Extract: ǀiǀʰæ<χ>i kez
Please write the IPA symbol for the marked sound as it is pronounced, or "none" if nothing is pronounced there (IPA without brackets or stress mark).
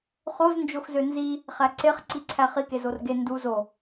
χ